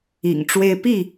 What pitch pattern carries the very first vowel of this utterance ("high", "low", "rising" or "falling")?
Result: low